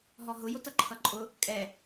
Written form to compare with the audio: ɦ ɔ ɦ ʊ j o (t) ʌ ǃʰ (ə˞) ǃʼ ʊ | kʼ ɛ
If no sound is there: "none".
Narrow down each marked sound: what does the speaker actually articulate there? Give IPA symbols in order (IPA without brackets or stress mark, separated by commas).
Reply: t, ʌ